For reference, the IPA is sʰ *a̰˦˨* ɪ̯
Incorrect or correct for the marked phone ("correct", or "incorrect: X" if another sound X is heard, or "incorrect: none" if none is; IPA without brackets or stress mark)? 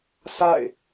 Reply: correct